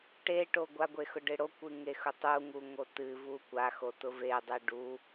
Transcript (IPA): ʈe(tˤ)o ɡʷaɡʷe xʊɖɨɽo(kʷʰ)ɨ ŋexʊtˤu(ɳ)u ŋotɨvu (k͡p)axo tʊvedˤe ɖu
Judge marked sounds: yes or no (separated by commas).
no, no, no, no